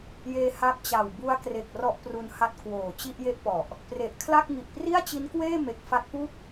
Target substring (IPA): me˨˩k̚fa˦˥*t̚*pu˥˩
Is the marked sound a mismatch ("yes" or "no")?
no